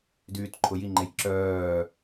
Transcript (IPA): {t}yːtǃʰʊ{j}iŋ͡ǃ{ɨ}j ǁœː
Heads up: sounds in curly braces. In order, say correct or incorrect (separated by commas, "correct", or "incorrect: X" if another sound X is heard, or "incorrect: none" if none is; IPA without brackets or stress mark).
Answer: incorrect: d, correct, incorrect: e